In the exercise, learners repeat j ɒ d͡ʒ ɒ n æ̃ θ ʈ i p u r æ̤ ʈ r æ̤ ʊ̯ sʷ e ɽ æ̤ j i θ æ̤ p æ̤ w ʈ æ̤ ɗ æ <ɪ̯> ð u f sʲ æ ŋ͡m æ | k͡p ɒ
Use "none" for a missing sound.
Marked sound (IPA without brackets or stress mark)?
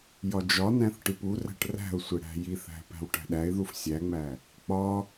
ɪ̯